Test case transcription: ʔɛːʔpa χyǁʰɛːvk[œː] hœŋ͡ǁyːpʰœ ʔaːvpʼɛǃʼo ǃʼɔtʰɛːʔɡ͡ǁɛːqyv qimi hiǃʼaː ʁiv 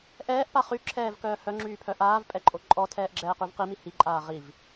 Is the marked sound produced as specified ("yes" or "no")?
yes